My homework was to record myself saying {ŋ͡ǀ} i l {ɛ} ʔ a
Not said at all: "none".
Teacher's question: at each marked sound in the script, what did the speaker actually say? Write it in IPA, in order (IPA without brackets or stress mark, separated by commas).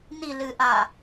n, ɨ